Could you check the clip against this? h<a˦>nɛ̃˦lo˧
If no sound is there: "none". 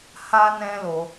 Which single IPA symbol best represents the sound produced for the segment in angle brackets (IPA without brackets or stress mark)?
a˦